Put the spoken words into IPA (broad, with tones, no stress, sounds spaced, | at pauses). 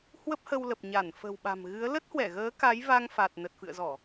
h w ə˦˥ p̚ h ə˧ w l ə˨˩ p̚ ɲ a˧˩ n f ə̤˨˩ w ɓ a̤˨˩ m ɣ ɨ˨˦ ə̯ l ə˦˥ t̚ h w ɛ˧˩ ɣ əː˨˦ k a˨˦ j v a˧ ŋ f a˨˩ t̚ n ə˨˩ t̚ f ɨ̰˧˨ ə̯ z ɔ˧˩˨